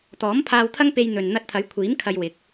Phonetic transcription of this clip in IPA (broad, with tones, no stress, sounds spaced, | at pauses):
t̪ ɔː˨˥ m pʰ aː˧ w t̪ʰ ɐ˥ ŋ p e˧ j n̪ ɵ˨ n n̪ ɐ˧ t̚ t̪ʰ ɐ˨˥ j kʷʰ iː˨˥ m kʰ ɐ˧ j w ɪ˨˥ k̚